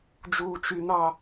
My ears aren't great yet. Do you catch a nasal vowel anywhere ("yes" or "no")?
no